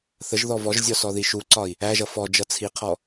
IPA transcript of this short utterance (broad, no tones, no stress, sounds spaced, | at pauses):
θ ə ʒ ð ɔ v ɔ ʒ zʲ ɔ s ɔ ð i ʃ u ǀ ɒ i̯ | æ ʒ ʌ f ɔ d͡ʒ ʌ t͡sʰ i qʰ ɔ